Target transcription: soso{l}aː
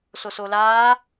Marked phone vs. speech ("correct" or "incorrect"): correct